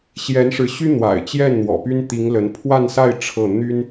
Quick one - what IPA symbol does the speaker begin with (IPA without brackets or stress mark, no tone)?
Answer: ɕ